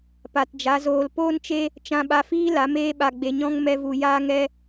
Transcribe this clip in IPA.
p a˨ t d͡ʒ a˨˦ z oː˧ l p oː˦ n t͡ʃ e˦ | t͡ʃ ã˧ ɓ a˧ f iː˦ l a˨˦ m eː˦ ɓ a˧ ɡ͡b e˧ ɲ ɔ̃˦ ŋ m ɛ˦ v u˧ j aː˦ ŋ ɛ˦

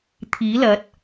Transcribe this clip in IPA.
t̪ʰ iː˨˥ l ɐ˨˥ t̚

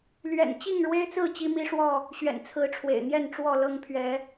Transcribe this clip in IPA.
l ɥ ɛ̰˨˩ n t͡ɕ i˥˨ ŋ ɻ w e˦ ɪ̯ t͡s ɹ̩˥˨ t͡ɕ i˦ m i˦ ʂ w ɔ˥˨ | ɕ ɥ ɛ̰˨˩ n t͡sʰ ɹ̩˨˦ ʈ͡ʂʰ w ḛ˨˩ ɪ̯ n̪ j ɛ˥˨ n ʈ͡ʂ w ɔ˥˨ l ɤ˦ ŋ pʰ ɥ ɛ˨˦

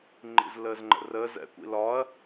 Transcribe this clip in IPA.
ŋ͡ǃ ḭ z l əː z ŋ͡ǃ ə̰ r əː z ɛ̰ kʷ ḭ l ɒ ɐ̯

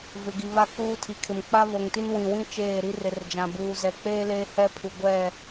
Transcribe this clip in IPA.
v ɪ˨ ɡ i˨ β a˦ k uː˦ tʰ i˨ kʰ ɪ˨ m k͡p a˦ β o˨ ŋ t i˦ n w ĩ˨ w ĩ˦ t͡ʃ eː˦˨ ɾ i˦ r ɪ˨ r d͡ʒ ã˨ b uː˨ z ɛ˨ k͡p eː˦ l eː˦ h ɛ˦ pʰ u˨ ɡʷ ɛ˦˨

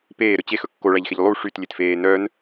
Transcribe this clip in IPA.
p eː ɾ ɵ t͡ɕ e x ɵ kː o ɭ æ ʎ x e ʎ lˠ u ʂ y t lʲ e t f eː n œ n

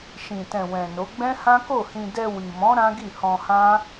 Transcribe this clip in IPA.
ʃ ĩ˨ t ɛ̃˨ w ɛ̃˨ n o˨˦ ɡ͡b ɛ̃˦ h ã˦ k o˦˨ h ĩ˧ d ɛ˧ w i˨ m ɔ̃˨˦ ɾ ã˦ ɡ i˦˨ h ɔ̃˧ h ã˦

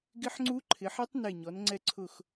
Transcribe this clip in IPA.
ɡ ɪ˦˥ ħ ŋ͡ǀ u˦˥ ǃʰ ɪ˩˧ ħ ɛ˦˥ tˤ n e˧˩ ɲ ɔ˩˧ n ŋ͡ǀ ɛ˧ ǀʰ ʊ˧˩ x

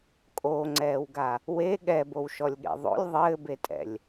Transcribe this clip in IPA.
kʼ o ŋ͡ǀ ɛː w ɡ a | w e ɠ ɛ b o w ʃ ɔ lʲ ɠ ḛ ðˤ o̰ lʲ ðˤ ɘː b e tʼ ɛ̰ lʲ

